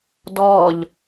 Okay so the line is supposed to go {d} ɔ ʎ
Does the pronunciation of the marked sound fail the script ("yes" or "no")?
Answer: no